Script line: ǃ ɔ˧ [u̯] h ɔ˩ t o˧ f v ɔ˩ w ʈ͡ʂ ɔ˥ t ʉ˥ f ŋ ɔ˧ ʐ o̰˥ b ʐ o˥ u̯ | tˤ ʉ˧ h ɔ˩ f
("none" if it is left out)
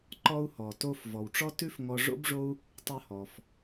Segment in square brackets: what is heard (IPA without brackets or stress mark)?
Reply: u̯